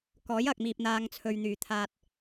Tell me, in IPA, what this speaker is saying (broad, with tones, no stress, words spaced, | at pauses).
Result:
kɔː˨˥jɐ˨k̚miː˨p̚ n̪aː˧ŋt͡sʰɵ˧ɥn̪yː˨ t̪ʰaː˥t̚